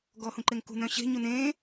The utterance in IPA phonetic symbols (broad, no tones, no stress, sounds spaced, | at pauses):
ɡ ɔː h ũ ǃ e ŋ k ṳ n œ̃ ɕ e̤ ɲ u n ẽː